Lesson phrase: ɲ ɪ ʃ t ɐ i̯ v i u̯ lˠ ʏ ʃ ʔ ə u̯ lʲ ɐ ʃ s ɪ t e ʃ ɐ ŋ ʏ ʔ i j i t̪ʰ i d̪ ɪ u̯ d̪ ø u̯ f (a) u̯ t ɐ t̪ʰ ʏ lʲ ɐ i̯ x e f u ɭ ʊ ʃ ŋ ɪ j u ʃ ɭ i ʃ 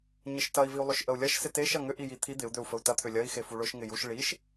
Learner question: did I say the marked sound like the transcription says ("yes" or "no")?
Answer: no